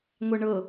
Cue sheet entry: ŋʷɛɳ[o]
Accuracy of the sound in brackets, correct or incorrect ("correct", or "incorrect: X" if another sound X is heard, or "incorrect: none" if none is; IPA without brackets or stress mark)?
incorrect: ɤ